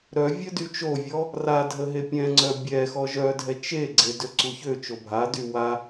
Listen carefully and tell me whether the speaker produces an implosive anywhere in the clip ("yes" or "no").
no